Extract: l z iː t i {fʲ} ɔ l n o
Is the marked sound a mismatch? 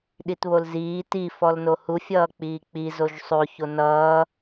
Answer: yes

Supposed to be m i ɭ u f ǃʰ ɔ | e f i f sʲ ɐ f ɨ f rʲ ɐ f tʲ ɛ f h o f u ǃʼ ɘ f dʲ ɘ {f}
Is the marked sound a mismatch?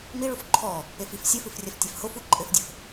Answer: no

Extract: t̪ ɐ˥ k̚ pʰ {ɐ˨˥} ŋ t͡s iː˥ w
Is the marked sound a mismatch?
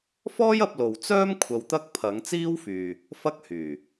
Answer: no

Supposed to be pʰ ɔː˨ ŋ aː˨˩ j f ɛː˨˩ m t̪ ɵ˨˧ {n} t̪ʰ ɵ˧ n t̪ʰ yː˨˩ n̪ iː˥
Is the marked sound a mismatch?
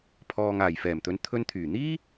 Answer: no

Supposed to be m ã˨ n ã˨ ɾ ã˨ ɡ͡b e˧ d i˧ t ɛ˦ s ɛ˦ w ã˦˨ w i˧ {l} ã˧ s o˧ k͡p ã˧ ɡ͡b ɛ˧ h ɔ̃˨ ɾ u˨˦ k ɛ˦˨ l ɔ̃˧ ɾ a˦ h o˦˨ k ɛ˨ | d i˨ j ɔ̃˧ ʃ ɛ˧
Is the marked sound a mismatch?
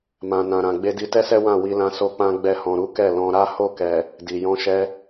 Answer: no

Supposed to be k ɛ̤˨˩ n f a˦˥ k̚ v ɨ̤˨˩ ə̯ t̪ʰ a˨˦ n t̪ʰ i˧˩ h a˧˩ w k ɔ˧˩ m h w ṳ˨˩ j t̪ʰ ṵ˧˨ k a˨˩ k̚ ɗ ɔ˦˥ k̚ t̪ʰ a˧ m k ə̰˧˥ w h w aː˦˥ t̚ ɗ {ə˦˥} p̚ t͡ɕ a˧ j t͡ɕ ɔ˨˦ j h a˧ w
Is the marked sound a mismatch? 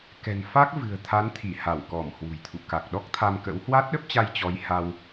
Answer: no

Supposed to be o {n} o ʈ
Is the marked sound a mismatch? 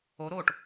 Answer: yes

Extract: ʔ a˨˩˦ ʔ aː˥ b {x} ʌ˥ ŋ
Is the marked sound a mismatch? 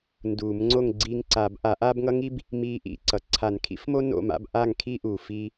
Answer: yes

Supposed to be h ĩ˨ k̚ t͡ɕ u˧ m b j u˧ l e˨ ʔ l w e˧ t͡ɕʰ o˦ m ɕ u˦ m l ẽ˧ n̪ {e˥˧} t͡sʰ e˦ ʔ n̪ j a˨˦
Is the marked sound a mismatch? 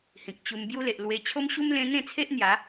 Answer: yes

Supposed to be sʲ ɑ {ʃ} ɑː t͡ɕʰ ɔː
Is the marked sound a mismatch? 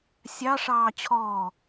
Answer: yes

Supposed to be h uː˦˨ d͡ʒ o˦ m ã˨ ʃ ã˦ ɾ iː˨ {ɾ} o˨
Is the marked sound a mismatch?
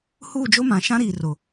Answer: yes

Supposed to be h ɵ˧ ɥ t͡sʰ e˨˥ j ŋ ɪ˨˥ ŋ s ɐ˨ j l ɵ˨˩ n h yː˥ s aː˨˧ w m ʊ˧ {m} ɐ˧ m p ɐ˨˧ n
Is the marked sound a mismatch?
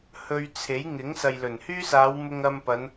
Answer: yes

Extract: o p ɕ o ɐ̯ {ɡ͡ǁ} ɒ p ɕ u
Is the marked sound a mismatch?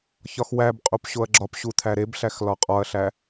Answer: no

